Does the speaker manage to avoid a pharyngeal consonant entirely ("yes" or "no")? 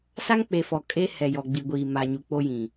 yes